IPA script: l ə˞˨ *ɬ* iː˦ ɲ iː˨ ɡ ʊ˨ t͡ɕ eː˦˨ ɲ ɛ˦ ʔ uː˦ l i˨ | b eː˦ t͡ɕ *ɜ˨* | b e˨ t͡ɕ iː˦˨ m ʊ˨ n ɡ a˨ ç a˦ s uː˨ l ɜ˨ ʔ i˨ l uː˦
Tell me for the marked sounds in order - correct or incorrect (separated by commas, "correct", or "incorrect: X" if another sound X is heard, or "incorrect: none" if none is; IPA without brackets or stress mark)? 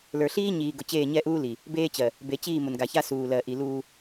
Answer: correct, correct